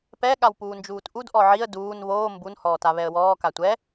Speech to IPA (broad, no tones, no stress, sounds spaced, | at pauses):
p ɛ ɠ a w p uː n d͡ʒ uː t ʔ u d ʔ ɔ ʕ i ə̯ d uː n β oː m b u n h ɔː t a β ɛ ə̯ w ɔː k a tʷ ɛ